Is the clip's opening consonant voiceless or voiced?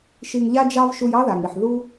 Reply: voiceless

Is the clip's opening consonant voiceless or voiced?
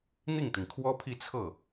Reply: voiced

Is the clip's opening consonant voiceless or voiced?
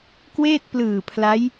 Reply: voiceless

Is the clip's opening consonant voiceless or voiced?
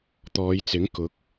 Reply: voiceless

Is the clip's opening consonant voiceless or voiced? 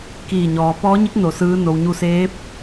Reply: voiceless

